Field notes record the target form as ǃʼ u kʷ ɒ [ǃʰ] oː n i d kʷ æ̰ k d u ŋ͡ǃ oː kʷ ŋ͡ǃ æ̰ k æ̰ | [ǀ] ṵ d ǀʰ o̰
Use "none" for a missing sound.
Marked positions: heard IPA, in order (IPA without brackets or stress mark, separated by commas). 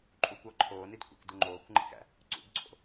ǃʰ, ǀ